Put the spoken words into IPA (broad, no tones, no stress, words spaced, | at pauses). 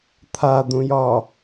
t̪ʰad̪ũjɒ